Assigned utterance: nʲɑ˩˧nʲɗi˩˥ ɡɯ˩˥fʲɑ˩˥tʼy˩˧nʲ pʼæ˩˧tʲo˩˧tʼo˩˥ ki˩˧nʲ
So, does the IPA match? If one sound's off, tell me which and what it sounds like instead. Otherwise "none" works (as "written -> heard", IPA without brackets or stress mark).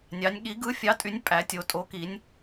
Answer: ɗ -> ɠ